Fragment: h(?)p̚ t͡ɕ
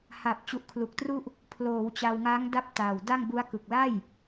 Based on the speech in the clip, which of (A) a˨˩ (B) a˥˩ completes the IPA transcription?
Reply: A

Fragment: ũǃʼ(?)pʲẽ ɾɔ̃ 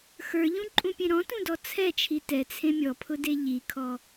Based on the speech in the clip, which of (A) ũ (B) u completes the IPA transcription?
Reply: A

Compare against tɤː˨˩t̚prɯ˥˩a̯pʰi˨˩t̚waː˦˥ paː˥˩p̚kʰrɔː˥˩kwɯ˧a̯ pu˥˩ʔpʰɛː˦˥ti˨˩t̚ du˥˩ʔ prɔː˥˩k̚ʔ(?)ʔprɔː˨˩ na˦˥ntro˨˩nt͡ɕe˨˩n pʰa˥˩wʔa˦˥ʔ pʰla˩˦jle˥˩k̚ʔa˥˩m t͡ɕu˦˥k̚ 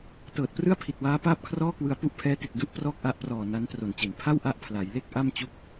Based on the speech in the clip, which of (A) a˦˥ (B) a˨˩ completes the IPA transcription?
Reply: A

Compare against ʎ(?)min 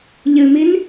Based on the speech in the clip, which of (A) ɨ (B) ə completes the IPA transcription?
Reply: A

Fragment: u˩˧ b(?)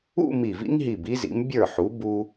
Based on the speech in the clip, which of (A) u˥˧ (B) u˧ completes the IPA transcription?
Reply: B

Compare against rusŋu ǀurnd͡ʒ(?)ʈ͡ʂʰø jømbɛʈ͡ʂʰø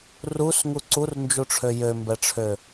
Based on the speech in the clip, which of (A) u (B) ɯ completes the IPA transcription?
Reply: A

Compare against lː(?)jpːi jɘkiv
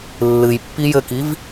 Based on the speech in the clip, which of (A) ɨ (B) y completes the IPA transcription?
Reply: A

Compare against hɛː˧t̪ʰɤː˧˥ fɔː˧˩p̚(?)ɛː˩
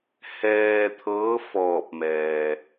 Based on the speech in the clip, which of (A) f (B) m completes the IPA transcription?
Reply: B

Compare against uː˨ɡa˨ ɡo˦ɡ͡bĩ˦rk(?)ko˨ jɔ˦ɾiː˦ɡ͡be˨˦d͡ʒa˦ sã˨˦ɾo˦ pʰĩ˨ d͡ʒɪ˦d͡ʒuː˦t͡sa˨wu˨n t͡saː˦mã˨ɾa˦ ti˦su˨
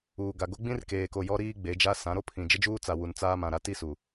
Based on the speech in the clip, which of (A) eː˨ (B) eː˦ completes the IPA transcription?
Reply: A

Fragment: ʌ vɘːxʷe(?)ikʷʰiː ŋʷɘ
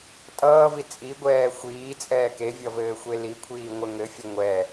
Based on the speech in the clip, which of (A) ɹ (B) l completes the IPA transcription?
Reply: B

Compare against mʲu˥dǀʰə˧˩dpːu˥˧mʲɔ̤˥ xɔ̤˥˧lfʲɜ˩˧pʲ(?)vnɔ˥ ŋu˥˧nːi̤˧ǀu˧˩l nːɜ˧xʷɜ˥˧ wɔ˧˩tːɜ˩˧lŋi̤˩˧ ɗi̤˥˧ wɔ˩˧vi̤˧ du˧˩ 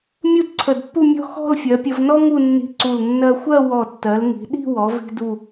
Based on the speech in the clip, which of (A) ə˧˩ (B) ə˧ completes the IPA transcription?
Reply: B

